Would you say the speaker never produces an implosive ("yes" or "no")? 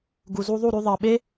no